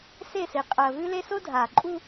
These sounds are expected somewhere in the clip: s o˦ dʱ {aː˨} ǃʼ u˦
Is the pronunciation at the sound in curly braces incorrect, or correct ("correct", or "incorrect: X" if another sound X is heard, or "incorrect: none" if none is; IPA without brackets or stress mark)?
correct